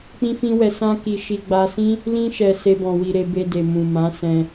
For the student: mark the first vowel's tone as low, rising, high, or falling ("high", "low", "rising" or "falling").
high